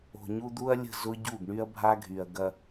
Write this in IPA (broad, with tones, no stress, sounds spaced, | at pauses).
o̤˨ ɲ u˦ d̪ u˦ ɐ̯ lʲ ə̤˦˨ z ʊ˦ ɟ u˦˨ ɡ ɳ y˦ ɐ̯ bʱ a˦ ɡʱ y˨ ɐ̯ ɡ ɐ˦